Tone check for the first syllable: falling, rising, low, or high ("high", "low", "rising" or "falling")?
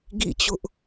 falling